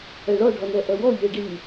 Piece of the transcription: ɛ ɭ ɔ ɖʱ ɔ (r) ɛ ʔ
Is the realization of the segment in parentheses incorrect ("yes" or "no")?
yes